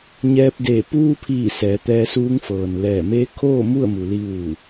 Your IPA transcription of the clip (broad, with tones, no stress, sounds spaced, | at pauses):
ɲ ɛː˧ p̚ d e˧˩ p uː˧ pʰ iː˧˩ s ɛː˩˧ t̪ ɛː˧ s uː˧˥ ŋ f ɤː˩ n l ɛː˧˩ m eː˧˥ kʰ oː˥˨ m u˥˨ ə̯ m u˩ l i˧ ʋ uː˧˩